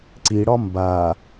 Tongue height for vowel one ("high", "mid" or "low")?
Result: high